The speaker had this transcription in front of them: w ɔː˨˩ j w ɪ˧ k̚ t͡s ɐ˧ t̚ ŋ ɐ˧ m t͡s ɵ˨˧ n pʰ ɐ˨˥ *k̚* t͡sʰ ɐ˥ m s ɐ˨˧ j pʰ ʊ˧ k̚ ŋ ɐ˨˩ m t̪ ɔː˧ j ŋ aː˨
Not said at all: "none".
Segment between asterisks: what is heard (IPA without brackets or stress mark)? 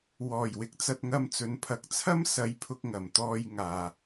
k̚